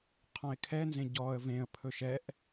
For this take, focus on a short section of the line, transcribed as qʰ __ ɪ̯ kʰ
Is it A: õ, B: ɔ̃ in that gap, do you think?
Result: B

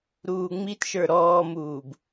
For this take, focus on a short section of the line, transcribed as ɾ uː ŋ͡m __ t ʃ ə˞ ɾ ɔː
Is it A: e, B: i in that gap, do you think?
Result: B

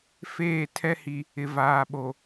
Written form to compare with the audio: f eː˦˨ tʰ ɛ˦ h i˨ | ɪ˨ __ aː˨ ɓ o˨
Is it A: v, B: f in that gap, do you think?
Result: A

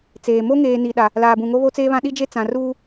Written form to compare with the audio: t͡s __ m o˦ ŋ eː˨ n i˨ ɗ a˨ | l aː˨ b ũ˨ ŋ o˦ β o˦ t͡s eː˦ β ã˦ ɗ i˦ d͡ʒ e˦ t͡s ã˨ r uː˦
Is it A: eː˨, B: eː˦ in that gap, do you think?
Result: A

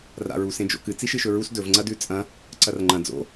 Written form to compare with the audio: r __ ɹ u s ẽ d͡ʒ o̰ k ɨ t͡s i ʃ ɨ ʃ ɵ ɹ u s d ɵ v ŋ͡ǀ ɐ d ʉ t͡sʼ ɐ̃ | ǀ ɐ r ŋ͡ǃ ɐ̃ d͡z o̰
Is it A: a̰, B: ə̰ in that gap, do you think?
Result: A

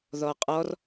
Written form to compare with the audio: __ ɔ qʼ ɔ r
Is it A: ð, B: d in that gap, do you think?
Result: A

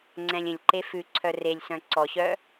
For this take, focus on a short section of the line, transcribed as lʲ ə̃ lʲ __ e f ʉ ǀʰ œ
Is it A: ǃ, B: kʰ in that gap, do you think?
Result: A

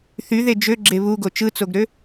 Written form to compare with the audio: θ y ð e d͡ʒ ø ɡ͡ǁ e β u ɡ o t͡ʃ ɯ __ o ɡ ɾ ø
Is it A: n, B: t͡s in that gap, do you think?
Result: B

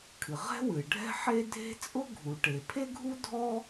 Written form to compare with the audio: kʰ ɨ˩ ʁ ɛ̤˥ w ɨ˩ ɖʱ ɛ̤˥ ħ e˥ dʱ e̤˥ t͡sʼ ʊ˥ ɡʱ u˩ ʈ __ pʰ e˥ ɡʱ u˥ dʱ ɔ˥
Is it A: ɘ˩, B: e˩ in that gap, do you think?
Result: B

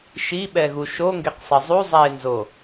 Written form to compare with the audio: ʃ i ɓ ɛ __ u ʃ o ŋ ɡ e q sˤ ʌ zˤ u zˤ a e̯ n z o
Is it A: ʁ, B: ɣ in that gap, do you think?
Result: B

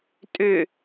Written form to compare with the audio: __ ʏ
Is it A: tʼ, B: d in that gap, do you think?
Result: A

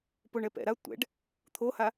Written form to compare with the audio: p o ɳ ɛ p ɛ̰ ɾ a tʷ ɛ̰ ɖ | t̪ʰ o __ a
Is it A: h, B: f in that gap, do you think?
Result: A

